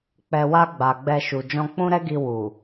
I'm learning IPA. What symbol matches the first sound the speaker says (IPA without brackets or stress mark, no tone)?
k͡p